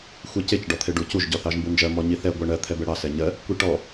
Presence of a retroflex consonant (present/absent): present